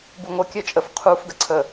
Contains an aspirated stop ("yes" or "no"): yes